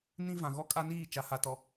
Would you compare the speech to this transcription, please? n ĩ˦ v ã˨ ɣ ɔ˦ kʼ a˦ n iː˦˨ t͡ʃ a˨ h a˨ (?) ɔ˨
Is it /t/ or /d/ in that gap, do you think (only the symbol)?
t